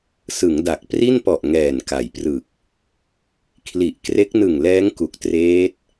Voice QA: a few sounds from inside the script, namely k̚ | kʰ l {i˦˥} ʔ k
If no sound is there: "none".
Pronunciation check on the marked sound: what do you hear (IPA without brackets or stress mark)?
i˨˩